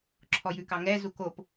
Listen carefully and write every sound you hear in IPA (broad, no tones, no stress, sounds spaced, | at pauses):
ǁʰ ɔ j ʉ k ɑ ŋ ɛ z u k o p